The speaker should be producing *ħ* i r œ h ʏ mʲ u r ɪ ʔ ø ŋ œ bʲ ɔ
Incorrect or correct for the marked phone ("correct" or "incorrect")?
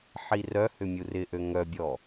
correct